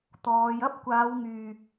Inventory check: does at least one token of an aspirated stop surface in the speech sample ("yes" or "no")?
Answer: no